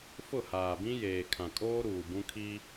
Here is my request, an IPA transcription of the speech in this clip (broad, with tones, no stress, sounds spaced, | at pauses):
f ʊ˦˨ h aː˨ b ĩ˦ j eː˨ kʰ ã˨ kʼ oː˦ ɾ uː˨ b ũ˦ kʰ i˦